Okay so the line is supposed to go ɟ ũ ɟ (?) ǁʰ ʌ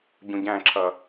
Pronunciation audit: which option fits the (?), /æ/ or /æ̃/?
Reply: æ̃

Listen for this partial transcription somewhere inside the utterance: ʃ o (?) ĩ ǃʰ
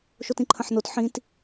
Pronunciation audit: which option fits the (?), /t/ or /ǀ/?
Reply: t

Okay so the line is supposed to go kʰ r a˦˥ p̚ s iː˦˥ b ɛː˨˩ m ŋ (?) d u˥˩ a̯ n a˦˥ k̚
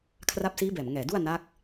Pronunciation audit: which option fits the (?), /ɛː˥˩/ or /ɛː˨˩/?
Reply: ɛː˨˩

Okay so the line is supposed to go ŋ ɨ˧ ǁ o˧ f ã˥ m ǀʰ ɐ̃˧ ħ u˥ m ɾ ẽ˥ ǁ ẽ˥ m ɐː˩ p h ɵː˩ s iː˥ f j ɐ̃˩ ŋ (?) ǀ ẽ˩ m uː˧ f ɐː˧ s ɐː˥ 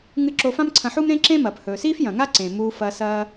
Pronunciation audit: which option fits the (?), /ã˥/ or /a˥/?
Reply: a˥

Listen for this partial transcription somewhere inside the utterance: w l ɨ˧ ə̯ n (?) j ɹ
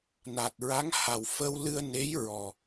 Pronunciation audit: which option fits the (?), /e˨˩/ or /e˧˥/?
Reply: e˧˥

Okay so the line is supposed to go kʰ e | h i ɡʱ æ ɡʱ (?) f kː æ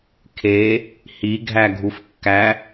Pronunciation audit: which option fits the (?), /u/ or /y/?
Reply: u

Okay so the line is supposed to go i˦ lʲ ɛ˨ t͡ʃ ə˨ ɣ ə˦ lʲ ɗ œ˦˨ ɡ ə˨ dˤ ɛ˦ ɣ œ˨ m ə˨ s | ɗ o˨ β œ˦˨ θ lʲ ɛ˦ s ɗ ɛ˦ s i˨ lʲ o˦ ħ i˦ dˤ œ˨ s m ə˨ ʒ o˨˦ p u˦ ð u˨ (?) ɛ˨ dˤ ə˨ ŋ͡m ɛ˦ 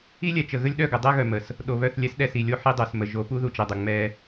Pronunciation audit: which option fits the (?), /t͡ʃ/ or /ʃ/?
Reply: t͡ʃ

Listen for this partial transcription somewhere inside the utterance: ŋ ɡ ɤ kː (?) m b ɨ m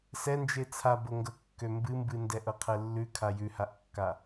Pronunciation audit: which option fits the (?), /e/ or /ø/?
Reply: ø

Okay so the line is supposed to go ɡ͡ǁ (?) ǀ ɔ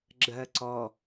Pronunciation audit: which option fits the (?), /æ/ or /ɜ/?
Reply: ɜ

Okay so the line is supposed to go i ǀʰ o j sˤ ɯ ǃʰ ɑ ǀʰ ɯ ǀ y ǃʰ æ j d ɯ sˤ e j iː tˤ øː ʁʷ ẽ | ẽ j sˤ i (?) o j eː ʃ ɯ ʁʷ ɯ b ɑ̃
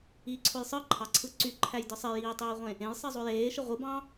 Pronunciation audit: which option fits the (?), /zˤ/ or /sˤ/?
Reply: zˤ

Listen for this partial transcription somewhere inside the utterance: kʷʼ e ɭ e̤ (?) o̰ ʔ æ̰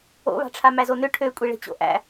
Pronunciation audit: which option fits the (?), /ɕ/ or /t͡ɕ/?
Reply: t͡ɕ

